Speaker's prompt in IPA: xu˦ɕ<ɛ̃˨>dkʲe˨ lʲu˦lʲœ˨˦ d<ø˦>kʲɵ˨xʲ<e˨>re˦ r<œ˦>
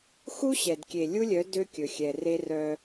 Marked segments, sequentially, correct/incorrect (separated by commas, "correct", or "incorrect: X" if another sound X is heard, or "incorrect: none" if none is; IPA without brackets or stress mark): incorrect: ɛ˨, correct, incorrect: ɛ˨, correct